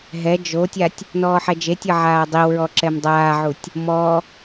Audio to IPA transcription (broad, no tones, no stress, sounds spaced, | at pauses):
ɦ ɛ d͡ʒ o tʲ a tʲ | n ɔː ħ ɛ d͡ʒ e tʲ ɤ ʕ aː dˤ i w ɹ ɔ ǁ ɛ m dˤ aː ʕ u tʲ | m ɔ